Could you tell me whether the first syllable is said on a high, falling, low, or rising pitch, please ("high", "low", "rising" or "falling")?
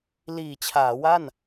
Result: low